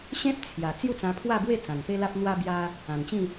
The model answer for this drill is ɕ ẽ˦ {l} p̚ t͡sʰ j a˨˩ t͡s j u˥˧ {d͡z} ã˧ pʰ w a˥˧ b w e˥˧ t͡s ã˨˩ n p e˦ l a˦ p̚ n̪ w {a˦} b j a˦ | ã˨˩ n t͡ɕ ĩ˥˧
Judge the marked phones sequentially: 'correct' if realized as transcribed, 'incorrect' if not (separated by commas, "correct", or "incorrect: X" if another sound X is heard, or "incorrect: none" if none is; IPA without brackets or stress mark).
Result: incorrect: none, incorrect: t͡s, correct